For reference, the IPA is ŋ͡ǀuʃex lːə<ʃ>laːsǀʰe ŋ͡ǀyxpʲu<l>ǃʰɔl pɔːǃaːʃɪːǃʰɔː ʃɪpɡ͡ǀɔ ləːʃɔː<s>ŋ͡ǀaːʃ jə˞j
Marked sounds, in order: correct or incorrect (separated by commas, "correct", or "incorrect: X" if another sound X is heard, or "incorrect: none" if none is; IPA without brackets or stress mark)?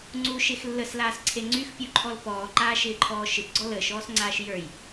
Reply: incorrect: s, incorrect: none, correct